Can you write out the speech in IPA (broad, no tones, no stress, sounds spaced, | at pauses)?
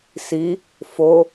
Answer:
s i | f o